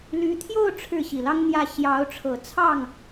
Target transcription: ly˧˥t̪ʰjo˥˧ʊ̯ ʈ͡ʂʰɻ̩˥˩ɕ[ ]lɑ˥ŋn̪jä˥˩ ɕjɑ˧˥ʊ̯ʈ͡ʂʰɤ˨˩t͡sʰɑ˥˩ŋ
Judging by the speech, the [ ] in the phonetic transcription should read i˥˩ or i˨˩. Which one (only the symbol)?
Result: i˨˩